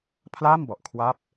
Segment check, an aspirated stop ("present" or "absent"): present